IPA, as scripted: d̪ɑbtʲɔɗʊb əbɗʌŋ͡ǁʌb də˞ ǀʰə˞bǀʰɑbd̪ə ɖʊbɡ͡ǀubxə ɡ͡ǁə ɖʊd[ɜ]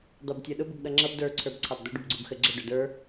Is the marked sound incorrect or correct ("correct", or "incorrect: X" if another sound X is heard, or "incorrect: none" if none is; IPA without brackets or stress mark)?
incorrect: ə˞